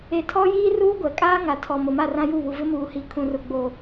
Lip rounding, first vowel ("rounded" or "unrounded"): unrounded